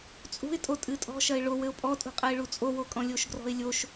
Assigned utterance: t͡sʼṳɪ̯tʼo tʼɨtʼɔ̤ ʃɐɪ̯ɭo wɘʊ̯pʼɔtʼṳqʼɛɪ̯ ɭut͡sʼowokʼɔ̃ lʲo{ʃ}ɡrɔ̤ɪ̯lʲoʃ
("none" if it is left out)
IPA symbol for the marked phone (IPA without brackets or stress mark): ʃ